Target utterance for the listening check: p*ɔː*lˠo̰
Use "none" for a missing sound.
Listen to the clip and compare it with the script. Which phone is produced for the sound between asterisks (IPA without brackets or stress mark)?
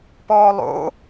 ɔː